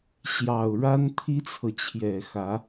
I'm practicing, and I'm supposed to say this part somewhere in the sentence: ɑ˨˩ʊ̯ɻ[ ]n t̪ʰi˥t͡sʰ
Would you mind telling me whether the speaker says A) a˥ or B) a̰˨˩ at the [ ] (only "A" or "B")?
A